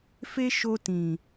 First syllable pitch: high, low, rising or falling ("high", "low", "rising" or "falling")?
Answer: high